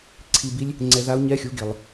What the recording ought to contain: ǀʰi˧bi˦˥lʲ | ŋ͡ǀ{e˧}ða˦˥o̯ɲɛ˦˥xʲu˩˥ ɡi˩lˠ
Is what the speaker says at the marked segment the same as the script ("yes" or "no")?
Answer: no